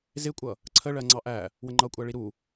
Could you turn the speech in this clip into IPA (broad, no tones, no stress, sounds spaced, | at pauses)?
z ɪ kʷʼ ʌ | ǀʰ ə ɭ ɜ ŋ͡ǀ ɑ ʔ æ | w ə ŋ͡ǃ ʌ kʷʼ æ ɭ i ɾ u